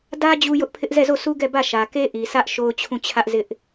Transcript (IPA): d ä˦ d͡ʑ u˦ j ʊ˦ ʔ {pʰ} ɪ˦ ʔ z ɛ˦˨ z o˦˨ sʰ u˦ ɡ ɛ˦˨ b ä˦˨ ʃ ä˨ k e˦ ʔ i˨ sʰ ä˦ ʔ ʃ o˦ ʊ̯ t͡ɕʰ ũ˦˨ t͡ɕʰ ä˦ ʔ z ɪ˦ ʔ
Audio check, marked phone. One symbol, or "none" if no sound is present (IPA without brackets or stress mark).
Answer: pʰ